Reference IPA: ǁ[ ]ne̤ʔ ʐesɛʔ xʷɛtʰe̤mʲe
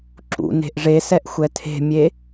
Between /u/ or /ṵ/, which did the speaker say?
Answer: ṵ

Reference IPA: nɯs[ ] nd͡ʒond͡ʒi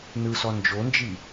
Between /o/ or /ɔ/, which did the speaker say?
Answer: ɔ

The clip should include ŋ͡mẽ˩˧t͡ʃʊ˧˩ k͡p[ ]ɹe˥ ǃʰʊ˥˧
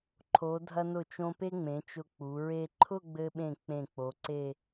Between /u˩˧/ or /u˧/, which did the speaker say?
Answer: u˩˧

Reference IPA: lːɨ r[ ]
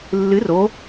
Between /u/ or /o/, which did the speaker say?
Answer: o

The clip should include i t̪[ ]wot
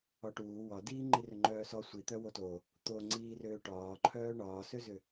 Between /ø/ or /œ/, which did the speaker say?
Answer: œ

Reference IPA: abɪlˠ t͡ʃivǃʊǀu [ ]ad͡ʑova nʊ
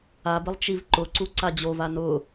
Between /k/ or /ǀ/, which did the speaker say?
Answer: ǀ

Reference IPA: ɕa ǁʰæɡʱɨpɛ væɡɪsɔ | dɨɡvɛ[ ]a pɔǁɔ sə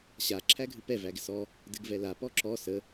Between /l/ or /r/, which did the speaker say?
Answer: l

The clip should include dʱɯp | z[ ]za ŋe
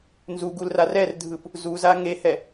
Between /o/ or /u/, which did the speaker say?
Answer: u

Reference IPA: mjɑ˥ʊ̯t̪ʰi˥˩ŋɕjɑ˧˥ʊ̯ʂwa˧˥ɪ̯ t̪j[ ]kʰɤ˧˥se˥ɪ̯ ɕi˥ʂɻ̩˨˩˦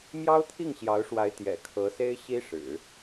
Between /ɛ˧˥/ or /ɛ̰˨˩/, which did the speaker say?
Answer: ɛ̰˨˩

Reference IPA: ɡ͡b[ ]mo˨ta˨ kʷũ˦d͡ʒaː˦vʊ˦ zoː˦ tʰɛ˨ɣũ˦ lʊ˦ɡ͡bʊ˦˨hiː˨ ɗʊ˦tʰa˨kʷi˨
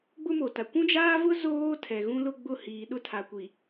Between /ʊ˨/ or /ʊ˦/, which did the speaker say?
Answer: ʊ˦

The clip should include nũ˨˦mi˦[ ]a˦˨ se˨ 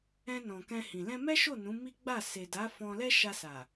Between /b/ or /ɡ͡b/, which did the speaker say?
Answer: ɡ͡b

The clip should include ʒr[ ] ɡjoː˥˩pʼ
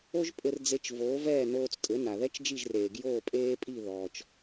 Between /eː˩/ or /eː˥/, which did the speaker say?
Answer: eː˩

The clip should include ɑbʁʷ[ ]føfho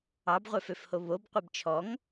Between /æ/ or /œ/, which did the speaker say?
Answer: œ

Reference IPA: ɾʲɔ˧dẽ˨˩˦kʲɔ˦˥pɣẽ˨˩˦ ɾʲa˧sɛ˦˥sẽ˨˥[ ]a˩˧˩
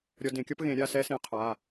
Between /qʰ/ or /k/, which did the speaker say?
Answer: qʰ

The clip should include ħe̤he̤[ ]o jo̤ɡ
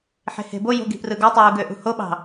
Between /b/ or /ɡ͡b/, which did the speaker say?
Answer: b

